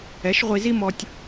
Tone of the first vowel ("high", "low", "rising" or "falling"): rising